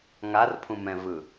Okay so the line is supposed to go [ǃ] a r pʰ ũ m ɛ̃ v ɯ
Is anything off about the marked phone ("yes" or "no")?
yes